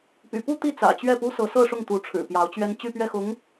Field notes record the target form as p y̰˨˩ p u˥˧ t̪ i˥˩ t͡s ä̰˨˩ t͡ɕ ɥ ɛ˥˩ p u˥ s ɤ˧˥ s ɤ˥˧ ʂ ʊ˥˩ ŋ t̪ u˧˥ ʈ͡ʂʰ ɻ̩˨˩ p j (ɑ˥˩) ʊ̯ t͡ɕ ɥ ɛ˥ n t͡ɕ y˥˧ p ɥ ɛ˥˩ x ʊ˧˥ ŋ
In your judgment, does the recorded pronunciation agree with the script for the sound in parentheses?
no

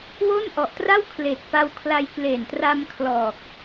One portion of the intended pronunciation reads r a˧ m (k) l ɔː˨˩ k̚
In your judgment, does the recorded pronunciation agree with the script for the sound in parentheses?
no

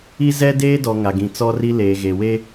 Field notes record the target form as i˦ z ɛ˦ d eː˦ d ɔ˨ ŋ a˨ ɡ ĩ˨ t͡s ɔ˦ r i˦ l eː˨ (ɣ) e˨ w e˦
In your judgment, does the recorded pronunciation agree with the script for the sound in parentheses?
yes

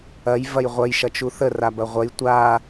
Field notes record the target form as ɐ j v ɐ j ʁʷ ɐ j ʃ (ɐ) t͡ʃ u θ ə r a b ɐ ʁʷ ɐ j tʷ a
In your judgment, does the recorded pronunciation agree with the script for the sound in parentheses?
yes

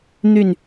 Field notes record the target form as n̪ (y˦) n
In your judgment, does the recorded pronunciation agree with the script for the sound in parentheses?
no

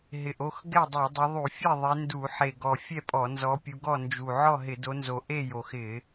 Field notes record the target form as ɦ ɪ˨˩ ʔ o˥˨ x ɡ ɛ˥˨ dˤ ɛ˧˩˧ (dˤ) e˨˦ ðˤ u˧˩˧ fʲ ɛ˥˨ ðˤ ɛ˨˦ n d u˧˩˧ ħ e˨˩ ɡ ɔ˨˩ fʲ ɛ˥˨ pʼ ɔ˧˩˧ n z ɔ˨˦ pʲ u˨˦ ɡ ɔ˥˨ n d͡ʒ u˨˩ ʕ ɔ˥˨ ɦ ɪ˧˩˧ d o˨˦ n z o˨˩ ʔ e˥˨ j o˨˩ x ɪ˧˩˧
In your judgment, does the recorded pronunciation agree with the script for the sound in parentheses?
yes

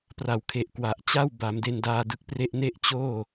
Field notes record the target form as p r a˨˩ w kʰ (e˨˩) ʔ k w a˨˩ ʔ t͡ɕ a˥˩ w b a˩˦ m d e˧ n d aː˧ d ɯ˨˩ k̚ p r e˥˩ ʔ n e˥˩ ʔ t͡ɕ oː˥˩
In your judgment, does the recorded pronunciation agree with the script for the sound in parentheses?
yes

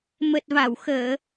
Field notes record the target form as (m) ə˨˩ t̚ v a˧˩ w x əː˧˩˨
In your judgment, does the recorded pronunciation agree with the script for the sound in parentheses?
yes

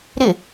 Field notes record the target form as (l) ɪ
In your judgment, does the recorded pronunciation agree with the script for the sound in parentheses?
no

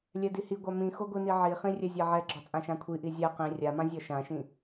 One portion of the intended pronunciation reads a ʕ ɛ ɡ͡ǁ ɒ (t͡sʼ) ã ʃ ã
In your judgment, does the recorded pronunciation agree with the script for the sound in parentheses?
yes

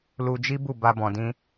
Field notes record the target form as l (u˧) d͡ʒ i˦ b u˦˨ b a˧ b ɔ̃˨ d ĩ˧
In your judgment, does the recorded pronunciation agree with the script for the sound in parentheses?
yes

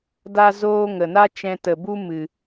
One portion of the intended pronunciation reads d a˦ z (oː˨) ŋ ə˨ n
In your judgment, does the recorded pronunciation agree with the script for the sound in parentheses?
no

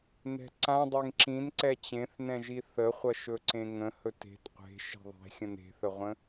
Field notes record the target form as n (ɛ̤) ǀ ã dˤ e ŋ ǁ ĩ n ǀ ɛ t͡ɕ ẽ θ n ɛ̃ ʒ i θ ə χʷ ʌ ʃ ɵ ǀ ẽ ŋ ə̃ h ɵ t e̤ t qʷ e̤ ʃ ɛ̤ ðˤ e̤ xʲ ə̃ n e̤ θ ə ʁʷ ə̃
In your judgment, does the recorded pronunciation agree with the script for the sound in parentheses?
yes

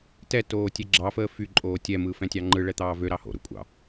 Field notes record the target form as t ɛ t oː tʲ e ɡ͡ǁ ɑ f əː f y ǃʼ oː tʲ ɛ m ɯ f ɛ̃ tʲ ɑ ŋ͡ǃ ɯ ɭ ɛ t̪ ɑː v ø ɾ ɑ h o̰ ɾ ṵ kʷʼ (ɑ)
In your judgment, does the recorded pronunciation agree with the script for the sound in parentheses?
no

